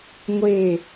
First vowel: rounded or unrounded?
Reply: unrounded